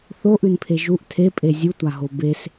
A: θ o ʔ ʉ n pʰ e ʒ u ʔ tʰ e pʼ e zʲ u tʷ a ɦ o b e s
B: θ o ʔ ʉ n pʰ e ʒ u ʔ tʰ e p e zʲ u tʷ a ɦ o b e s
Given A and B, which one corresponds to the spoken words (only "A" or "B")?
A